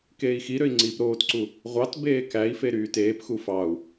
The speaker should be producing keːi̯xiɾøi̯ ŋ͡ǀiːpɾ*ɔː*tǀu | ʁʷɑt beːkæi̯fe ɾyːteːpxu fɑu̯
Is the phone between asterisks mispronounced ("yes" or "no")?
yes